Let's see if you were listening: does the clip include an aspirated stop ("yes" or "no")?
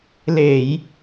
no